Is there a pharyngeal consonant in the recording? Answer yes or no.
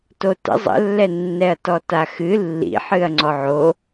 yes